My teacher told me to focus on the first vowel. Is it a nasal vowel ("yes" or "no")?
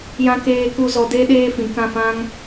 yes